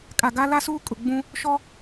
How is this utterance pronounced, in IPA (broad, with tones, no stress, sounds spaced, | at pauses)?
kʼ a˨ ɡ a˦ l a˦ s uː˦ kʼ ʊ˨ ɡ͡b ũ˦ | ʃ ɔ˦